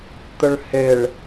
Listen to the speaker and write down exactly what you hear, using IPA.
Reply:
t̪əɭheɭ

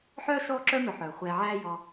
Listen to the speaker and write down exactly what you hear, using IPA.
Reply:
ħœː˥ ʃɔː˥ǁœ˥mœ˨ħœː˩ χʷɛː˨ʕæː˦ jɔ˨

